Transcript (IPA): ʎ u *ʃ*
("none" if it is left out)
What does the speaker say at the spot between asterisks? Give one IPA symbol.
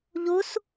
s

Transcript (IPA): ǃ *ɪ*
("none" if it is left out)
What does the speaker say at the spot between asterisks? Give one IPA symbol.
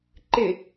ɪ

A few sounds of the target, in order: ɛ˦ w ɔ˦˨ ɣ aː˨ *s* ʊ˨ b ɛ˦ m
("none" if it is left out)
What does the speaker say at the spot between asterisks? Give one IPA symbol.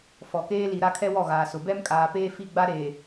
s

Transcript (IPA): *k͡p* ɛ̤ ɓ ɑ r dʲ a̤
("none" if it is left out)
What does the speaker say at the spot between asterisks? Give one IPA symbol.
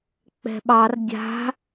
k͡p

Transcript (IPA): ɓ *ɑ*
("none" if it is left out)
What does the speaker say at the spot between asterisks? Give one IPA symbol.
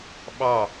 ɑ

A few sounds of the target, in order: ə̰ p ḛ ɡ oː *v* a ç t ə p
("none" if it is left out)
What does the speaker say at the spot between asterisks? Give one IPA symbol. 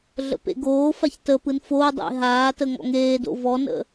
f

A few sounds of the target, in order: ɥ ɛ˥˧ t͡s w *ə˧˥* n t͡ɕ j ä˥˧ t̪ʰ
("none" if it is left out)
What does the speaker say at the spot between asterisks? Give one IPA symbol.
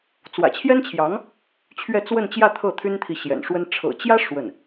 ə˥˧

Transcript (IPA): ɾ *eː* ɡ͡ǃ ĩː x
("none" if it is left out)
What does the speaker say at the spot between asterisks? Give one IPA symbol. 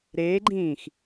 eː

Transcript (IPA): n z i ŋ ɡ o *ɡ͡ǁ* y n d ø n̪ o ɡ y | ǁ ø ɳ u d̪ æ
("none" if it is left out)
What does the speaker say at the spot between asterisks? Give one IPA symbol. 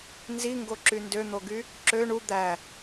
ǁ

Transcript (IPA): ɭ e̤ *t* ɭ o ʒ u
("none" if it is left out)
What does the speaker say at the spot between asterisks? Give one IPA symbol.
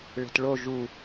t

